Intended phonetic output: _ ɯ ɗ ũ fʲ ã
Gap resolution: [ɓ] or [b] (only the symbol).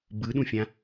b